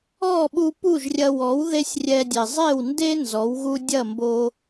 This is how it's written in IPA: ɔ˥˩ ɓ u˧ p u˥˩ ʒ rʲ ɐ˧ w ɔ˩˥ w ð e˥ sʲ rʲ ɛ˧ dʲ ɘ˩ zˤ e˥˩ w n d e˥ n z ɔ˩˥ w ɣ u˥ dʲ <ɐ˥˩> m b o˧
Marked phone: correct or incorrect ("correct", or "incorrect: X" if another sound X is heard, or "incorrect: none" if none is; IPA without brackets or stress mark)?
correct